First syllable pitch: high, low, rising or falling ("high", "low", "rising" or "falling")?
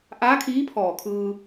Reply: rising